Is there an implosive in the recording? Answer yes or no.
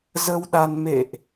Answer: yes